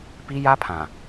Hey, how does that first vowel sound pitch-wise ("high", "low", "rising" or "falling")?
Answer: high